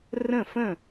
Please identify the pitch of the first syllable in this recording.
falling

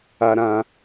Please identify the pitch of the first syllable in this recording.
high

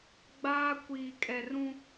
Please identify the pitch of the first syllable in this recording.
high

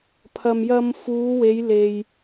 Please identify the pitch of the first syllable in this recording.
low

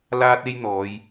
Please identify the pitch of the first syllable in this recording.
high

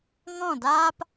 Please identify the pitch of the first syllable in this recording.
falling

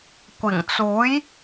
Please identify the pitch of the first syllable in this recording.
low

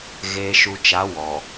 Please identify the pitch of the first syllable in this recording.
low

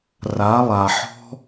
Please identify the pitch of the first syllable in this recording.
rising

